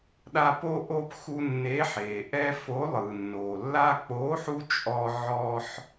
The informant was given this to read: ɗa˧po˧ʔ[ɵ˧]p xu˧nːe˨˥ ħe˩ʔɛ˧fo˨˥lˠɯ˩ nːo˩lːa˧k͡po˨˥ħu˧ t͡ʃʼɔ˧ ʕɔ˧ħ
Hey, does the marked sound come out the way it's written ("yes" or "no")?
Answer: no